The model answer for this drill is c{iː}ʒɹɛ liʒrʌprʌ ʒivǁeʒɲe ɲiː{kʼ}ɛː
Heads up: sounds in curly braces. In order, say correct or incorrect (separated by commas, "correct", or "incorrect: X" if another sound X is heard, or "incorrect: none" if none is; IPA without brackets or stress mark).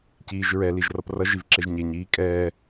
correct, correct